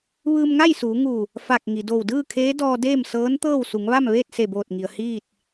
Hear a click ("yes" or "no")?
no